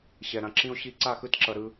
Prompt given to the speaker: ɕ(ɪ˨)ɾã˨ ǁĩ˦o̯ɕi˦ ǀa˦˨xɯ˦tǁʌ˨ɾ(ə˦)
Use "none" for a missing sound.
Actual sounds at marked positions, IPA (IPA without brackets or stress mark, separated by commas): ɛ˨, ɯ˦